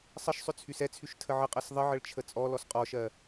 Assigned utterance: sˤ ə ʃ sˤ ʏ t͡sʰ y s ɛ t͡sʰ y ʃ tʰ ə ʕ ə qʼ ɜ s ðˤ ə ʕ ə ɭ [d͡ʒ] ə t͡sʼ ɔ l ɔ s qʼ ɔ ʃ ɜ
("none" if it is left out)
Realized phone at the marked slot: t͡ʃʰ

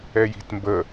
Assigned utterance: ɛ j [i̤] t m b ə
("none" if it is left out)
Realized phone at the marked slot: i̤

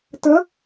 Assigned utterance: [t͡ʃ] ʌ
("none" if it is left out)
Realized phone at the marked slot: t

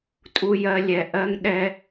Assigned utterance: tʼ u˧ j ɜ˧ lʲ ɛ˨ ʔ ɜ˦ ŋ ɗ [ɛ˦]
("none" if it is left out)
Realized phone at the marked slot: ɛ˦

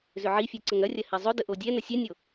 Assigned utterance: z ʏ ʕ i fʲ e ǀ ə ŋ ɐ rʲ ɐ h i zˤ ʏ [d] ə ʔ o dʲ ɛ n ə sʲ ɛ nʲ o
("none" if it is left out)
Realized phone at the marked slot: d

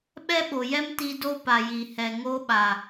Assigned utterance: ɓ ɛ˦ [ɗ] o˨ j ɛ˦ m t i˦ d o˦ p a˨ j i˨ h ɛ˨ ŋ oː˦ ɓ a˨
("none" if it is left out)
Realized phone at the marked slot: ɓ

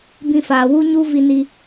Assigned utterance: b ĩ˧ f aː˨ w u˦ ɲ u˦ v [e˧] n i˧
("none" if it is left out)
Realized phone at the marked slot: i˧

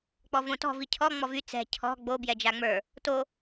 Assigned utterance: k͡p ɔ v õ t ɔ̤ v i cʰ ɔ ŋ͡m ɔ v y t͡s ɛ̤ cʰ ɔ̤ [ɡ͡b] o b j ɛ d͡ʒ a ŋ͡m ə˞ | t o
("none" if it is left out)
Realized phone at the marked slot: ɡ͡b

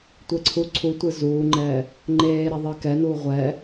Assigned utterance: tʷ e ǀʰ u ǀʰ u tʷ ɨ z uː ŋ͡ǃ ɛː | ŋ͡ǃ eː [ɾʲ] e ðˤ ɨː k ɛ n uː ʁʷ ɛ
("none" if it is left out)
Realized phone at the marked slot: ɾ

